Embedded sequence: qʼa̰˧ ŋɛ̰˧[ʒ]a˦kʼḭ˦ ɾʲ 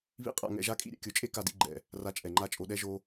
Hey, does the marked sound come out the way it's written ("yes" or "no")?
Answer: yes